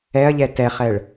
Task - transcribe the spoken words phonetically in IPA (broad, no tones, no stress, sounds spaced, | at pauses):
ɛ ɐ̯ ʎ ɛ t ɛ χ ɛ ɭ